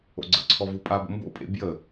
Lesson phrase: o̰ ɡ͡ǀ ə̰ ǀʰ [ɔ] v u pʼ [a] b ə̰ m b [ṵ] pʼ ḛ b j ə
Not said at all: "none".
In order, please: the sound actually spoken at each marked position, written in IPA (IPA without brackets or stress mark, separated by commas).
ɔ, a, o̰